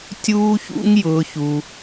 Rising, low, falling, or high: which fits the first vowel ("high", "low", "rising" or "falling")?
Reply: high